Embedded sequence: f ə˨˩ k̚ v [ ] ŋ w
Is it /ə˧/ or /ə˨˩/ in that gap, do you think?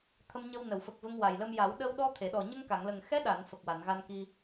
ə˧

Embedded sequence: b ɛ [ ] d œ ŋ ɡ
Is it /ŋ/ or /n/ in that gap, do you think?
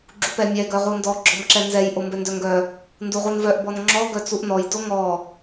n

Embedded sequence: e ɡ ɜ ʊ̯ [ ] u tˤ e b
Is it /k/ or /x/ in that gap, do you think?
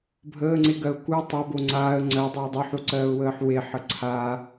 k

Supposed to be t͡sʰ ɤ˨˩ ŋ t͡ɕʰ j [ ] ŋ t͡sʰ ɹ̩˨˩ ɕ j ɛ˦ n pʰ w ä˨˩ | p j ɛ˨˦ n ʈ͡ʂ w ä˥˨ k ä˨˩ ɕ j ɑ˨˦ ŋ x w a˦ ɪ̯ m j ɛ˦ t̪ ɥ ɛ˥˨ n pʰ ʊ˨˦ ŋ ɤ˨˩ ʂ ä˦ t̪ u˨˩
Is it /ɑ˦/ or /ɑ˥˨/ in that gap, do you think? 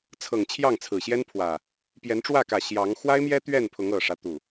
ɑ˥˨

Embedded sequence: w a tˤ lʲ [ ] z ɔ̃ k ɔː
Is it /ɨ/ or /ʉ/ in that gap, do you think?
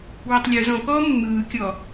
ʉ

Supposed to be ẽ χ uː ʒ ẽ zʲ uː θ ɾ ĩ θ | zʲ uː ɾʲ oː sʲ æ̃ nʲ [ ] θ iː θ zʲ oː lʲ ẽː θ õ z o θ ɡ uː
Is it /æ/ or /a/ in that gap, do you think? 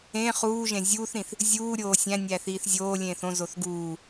æ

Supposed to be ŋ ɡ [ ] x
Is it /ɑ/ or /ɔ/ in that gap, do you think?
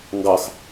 ɑ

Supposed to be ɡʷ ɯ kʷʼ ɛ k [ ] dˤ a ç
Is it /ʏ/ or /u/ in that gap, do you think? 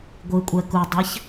u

